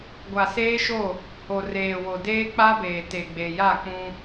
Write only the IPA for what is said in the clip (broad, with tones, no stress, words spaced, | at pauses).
ɡʷa˨seː˦ʃo˦˨ | ho˨reː˨wo˨ deː˦k͡pa˦beː˨ te˨ɡ͡be˨ja˦˨k͡pũ˦